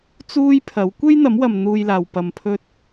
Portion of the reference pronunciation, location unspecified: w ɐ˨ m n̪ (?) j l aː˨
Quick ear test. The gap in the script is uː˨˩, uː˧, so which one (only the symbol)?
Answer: uː˧